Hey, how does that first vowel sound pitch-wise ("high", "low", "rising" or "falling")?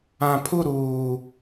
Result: low